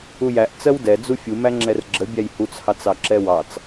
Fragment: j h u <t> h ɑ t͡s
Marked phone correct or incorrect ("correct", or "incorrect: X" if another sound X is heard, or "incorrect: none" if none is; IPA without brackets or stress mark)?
incorrect: t͡s